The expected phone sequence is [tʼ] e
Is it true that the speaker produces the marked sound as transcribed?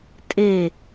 yes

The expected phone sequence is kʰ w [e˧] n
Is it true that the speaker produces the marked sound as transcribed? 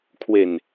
no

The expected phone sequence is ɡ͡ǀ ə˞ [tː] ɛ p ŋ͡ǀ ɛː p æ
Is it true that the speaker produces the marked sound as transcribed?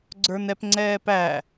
no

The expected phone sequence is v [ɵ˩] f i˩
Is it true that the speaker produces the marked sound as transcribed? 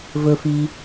yes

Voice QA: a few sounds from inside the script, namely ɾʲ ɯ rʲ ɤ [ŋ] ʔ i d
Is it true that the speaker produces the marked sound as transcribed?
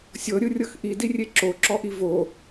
no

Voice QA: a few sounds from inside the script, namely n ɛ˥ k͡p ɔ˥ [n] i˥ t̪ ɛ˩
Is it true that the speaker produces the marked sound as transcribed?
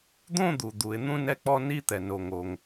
yes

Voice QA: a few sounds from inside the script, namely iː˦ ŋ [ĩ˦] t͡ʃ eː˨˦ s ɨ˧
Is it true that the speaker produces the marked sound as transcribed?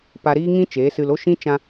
yes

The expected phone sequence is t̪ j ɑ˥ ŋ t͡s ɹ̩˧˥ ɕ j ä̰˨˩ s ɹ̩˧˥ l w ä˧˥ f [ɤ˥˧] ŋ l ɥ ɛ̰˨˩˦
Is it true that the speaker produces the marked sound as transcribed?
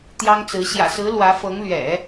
no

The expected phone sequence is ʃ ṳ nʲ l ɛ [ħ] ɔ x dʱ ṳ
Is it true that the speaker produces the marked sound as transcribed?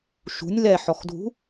yes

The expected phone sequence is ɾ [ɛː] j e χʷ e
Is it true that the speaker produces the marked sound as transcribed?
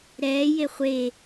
yes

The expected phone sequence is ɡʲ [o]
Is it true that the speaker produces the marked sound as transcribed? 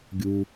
no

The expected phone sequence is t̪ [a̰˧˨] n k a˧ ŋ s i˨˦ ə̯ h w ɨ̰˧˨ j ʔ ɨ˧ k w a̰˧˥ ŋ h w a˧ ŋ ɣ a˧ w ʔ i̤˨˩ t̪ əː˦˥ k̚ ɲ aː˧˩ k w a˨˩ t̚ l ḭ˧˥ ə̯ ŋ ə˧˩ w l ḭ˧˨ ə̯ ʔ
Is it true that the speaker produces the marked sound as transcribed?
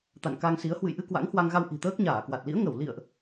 yes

